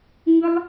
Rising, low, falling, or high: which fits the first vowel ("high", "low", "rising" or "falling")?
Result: high